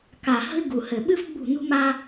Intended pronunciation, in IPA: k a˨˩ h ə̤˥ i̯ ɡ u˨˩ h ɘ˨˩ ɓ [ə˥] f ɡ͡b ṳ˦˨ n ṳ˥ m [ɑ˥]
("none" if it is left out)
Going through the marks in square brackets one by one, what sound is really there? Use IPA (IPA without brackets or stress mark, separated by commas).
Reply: ɨ˥, a˥